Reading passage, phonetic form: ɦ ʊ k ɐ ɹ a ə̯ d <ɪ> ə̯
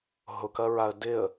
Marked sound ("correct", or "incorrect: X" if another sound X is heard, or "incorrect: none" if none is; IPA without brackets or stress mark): correct